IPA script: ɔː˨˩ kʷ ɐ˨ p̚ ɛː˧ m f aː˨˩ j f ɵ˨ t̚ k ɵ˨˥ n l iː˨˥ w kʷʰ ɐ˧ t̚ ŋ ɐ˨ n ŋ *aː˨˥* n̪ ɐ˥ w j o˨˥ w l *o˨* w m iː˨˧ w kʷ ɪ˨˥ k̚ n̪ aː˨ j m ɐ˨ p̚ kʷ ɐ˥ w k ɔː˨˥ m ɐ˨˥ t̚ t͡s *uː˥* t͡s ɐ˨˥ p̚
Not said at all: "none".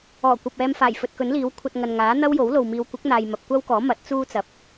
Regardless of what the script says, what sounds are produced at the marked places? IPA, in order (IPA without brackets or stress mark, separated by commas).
aː˨˥, o˨, uː˥